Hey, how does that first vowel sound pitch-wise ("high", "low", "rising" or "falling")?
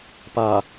low